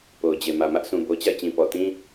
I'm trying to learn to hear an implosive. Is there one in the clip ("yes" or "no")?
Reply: no